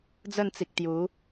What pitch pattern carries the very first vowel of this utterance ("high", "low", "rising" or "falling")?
falling